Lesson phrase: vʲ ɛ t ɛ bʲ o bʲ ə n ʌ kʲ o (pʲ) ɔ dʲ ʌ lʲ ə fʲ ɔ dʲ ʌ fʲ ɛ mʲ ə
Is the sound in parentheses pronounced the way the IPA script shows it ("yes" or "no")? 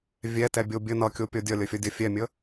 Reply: yes